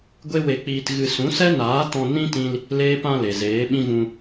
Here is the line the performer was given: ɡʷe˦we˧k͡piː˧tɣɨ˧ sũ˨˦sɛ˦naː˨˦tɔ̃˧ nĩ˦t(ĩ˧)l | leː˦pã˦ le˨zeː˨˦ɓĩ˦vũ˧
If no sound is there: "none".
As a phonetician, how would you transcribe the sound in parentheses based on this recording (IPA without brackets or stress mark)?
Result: ĩ˧